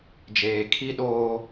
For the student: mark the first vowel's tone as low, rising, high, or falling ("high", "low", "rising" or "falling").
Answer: low